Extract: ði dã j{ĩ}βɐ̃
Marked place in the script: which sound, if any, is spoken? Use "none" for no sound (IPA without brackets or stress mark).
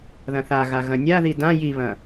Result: i